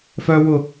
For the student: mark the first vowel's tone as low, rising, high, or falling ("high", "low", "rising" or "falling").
high